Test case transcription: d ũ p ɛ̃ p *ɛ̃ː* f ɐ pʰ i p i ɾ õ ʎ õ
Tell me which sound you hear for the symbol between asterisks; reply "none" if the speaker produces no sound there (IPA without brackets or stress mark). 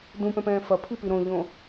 ɛ̃ː